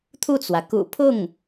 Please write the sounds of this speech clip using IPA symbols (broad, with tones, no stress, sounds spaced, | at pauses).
t̪ʰ u˥˩ t͡s w ä˩ k ṵ˨˩ pʰ ʊ˥˩ ŋ